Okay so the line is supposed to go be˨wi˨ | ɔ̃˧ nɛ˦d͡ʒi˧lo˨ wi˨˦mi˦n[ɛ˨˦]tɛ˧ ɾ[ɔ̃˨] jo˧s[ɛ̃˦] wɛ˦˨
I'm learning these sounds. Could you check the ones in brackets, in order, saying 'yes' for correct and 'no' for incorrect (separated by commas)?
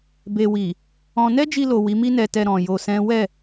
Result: no, yes, yes